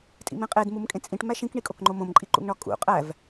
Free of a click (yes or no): no